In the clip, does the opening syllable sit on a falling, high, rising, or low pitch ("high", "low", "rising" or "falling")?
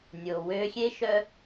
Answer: low